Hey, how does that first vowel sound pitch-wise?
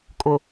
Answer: low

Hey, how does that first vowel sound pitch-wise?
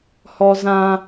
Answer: high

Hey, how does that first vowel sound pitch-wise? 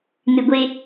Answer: low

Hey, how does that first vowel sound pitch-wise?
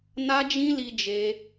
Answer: high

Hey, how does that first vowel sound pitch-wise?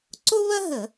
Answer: high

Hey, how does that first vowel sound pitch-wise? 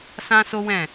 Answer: high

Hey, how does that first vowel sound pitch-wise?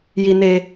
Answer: high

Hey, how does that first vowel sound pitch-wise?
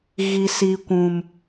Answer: low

